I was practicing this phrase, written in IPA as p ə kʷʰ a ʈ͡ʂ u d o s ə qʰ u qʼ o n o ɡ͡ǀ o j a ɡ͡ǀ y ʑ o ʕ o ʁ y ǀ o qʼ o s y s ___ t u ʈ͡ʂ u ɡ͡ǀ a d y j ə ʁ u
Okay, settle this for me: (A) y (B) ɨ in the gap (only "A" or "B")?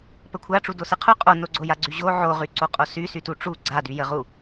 A